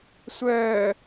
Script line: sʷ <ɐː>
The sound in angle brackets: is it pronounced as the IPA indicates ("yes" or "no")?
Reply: no